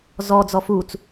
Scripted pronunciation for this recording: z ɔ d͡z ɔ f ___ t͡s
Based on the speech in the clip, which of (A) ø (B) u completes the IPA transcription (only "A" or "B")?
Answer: B